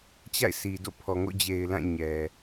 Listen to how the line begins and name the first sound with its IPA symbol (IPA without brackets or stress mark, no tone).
t͡ɕ